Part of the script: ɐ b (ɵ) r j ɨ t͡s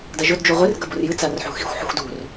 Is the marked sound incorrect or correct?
incorrect